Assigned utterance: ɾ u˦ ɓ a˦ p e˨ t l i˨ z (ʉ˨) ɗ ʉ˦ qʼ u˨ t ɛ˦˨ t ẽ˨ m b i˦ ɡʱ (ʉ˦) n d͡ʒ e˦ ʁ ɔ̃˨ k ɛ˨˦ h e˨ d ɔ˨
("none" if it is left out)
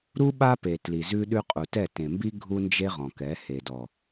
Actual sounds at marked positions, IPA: ʉ˦, u˦

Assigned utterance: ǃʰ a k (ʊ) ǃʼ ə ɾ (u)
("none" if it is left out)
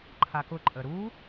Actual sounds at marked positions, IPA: ʊ, u

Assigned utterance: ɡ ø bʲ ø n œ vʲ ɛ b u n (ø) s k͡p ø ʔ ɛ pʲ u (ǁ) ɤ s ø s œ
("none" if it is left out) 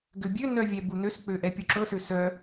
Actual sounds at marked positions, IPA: ø, ǁ

